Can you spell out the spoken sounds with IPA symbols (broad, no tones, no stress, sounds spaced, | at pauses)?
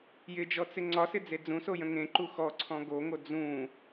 j ɪ d͡ʒ ɔ t͡s ɪ ŋ͡ǀ ɒ s ɪ d͡z e d͡z ũ s o j ə̃ ŋ ẽ ǃ u x ɔ ǀʰ ɔ̃ ɡ o ŋ o d͡z ũ